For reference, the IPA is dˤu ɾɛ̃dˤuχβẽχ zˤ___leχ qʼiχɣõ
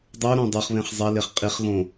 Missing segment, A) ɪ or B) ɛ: B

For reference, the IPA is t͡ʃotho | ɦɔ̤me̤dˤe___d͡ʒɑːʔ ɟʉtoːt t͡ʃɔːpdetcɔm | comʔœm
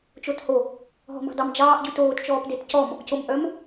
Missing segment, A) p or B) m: B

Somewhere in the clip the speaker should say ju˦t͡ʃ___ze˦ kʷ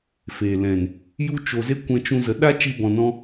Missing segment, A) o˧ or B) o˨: A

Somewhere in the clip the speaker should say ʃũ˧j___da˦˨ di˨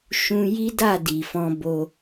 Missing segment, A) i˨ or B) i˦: B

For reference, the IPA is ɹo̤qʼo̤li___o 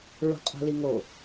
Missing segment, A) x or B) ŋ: B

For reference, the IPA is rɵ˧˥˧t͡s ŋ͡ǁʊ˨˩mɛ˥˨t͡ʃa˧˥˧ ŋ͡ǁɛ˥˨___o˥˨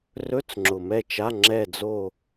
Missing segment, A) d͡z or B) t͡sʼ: A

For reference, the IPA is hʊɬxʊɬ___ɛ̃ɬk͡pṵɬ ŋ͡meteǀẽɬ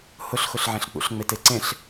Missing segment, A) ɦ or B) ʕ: B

